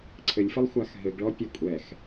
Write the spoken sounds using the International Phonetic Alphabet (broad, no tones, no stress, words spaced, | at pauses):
ǀʰɘlʲfɘlˠ xʷaxɦɘɡɭɔ pʲɔkʷʼɛx